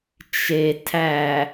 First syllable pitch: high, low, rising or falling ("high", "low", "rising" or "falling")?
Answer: low